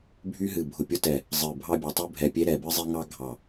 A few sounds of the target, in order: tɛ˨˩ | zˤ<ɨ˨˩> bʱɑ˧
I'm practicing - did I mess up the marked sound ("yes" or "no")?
no